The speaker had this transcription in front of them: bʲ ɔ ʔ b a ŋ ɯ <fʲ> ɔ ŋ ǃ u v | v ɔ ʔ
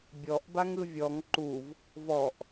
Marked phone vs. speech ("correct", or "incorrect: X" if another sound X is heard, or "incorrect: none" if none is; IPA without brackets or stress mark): incorrect: vʲ